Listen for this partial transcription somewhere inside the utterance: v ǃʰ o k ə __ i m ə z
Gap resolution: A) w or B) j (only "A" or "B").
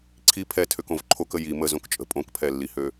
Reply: B